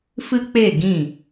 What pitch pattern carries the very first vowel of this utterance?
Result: high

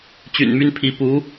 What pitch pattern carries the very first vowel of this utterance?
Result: low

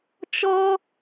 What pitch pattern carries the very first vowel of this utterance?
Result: high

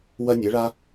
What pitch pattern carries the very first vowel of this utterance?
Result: high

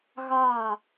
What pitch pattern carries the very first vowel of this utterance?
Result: falling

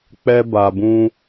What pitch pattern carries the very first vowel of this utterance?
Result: high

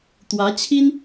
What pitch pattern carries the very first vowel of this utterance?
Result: rising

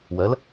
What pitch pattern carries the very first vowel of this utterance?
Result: rising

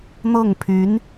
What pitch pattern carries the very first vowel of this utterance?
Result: falling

